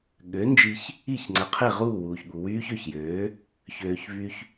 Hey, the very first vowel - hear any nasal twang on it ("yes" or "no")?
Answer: no